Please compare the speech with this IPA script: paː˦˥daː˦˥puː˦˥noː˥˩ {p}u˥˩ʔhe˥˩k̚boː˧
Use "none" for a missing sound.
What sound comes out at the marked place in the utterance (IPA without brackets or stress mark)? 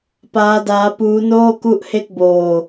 k